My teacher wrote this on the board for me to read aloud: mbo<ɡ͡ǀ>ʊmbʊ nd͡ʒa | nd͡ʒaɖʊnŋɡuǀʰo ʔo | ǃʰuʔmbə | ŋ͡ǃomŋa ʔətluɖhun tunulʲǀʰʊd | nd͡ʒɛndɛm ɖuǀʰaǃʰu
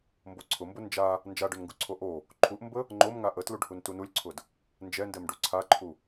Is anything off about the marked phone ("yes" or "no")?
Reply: yes